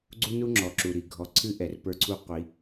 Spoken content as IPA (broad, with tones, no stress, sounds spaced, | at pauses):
ɡ͡ǀ u˦ n u˦ ŋ͡ǁ ɔ˨ ǁ u˨ ɾ i˨ ɡʱ ɔ˨ ǀʰ ɨ˦ ʔ ɛ˨ r p ə˞˦ ǀʰ u˦ qʷ i˨˦